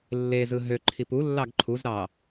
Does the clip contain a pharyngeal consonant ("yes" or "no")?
no